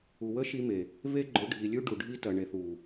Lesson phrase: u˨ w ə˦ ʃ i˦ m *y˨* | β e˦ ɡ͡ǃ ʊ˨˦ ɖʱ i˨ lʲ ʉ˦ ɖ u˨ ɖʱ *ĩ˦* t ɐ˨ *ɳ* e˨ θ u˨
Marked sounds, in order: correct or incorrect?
incorrect: e˨, incorrect: i˦, correct

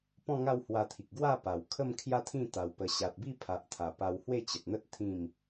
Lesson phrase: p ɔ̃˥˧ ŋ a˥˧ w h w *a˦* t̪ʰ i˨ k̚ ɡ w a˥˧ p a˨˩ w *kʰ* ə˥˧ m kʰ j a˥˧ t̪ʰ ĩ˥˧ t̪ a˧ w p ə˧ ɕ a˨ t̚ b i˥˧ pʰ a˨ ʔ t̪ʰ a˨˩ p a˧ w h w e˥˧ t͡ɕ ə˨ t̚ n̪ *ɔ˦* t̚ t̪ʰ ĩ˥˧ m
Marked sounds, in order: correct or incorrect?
incorrect: a˧, correct, incorrect: ə˦

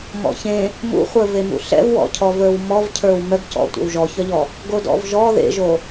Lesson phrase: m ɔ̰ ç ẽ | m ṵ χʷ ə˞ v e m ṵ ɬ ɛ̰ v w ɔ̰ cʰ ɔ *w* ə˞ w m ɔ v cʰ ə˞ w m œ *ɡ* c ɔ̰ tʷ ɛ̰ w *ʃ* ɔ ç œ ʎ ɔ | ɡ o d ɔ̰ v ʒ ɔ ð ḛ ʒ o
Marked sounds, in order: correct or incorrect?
incorrect: v, correct, incorrect: ʒ

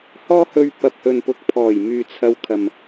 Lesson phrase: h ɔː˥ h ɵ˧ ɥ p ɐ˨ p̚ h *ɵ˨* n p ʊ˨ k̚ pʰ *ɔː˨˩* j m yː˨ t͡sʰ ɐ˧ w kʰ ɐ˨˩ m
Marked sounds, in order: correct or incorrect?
correct, correct

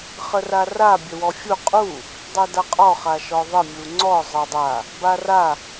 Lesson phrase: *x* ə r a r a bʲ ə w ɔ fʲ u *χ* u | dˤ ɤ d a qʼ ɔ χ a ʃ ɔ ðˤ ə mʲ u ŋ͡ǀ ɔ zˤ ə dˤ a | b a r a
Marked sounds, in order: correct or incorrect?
incorrect: χ, incorrect: qʼ

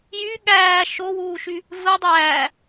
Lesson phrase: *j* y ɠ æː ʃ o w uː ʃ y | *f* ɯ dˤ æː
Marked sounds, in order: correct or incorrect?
correct, incorrect: v

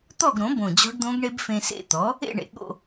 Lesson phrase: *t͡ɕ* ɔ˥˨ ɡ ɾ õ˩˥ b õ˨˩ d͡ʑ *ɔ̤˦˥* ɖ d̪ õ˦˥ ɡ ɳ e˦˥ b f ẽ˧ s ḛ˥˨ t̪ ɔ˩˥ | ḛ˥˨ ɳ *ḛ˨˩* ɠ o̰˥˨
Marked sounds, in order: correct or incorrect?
incorrect: t̪, correct, correct

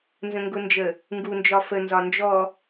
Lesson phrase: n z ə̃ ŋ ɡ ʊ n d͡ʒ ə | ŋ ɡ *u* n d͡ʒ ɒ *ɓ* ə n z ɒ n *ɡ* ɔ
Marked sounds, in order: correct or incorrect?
correct, incorrect: f, incorrect: d͡ʒ

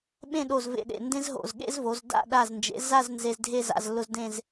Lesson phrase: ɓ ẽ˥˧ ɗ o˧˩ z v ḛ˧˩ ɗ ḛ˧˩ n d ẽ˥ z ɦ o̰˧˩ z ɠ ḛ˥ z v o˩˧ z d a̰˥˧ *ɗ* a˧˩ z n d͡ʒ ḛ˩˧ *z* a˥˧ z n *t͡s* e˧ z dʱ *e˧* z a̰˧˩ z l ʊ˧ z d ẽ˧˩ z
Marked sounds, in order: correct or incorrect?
correct, correct, incorrect: z, incorrect: e˥˧

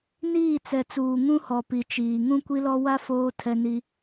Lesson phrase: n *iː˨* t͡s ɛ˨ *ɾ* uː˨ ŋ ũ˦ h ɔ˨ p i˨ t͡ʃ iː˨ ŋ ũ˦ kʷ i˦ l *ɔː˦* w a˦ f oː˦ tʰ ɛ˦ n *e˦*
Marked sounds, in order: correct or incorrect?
incorrect: iː˦˨, incorrect: t͡s, incorrect: ɔ˦, incorrect: i˦

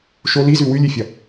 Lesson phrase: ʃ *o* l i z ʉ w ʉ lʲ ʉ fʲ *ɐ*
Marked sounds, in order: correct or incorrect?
correct, correct

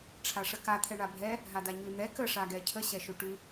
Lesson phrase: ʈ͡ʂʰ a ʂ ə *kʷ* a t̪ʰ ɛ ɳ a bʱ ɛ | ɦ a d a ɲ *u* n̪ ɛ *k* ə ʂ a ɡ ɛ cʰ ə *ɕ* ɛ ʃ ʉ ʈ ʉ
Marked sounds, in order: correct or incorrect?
incorrect: k, incorrect: ʉ, correct, correct

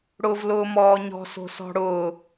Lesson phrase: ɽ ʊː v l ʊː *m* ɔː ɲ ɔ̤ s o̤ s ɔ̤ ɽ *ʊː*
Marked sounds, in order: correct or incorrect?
correct, correct

